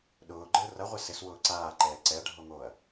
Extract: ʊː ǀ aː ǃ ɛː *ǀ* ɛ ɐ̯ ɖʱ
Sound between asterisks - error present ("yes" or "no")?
no